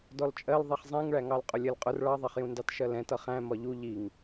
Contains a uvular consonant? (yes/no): yes